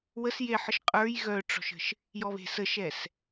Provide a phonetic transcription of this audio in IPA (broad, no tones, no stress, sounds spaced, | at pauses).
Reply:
w ə s j e ħ ə ʃ qʼ ə˞ j ɣ œ ʈ͡ʂ ɔ̤ ʃ ə̤ ʃ | j ɔ β e̤ s ə ʃ ɛ s